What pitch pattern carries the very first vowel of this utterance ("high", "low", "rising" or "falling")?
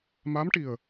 rising